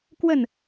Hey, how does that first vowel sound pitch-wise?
falling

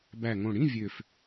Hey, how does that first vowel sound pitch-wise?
low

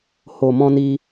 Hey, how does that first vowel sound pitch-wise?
low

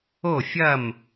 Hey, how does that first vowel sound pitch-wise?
falling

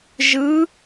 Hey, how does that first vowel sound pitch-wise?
rising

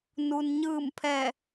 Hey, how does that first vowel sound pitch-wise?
low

